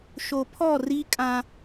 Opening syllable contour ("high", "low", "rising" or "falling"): low